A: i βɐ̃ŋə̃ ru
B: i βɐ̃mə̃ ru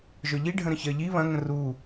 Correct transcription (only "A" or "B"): A